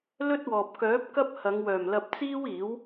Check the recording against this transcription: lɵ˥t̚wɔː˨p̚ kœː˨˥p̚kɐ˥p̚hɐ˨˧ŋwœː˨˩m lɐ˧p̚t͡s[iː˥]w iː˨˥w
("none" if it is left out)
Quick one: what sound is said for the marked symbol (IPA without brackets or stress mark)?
iː˥